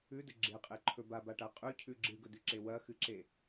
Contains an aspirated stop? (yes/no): yes